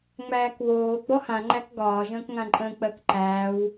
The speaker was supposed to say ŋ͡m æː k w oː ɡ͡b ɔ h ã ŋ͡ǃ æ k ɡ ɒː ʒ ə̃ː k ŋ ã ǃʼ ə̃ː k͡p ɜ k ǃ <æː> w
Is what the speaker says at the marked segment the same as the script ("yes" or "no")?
yes